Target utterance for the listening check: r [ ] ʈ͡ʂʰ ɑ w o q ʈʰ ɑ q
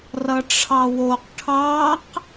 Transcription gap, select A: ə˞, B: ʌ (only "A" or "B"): B